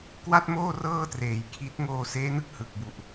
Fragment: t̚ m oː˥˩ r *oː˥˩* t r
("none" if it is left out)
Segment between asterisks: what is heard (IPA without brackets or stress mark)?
ɤː˥˩